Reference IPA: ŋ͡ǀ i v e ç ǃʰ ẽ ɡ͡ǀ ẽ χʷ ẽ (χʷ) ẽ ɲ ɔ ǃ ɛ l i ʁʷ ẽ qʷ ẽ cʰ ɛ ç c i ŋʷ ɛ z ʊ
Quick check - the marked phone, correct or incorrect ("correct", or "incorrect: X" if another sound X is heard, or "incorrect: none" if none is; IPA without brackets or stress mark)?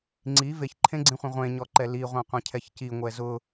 incorrect: ʁʷ